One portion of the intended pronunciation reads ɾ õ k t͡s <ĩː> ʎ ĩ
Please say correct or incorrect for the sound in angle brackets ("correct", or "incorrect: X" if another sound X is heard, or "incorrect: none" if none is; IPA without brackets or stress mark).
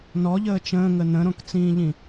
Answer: correct